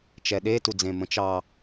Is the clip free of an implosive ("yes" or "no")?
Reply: no